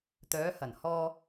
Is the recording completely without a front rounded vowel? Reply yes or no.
no